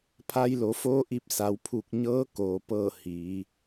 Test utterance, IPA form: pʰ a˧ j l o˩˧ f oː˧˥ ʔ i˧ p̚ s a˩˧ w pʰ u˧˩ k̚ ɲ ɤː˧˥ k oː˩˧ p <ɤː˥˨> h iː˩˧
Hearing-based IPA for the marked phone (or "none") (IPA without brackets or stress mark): ɤː˥˨